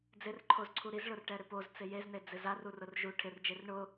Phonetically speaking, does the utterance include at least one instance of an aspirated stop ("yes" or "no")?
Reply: yes